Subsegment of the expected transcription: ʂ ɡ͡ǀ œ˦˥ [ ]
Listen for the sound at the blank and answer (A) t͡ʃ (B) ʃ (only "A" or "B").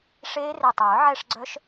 B